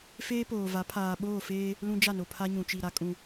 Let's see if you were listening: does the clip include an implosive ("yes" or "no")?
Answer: yes